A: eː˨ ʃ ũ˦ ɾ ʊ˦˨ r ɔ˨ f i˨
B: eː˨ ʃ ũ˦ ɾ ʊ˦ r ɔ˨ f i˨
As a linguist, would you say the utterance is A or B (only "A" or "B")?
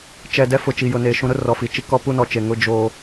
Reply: B